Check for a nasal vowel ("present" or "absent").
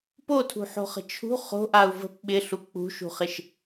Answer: absent